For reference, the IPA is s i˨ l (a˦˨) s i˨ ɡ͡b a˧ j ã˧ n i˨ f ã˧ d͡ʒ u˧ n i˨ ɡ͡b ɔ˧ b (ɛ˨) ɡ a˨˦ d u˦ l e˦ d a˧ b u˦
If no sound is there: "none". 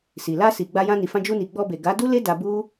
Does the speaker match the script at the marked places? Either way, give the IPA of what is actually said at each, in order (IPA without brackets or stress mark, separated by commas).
a˧, e˨